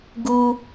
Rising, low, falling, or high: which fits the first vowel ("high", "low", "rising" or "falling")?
high